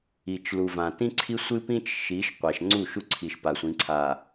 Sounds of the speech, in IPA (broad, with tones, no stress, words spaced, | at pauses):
i˨t͡ʃlu˨vã˨ tĩ˦ǀʰi˦sʷɨ˦pĩ˦t͡ʃ ʃi˨˦ʃ qʷa˨ʃŋ͡ǀu˦˨ʃu˦ǀʰi˨ʃ pa˨sʷĩ˨˦ǀʰa˨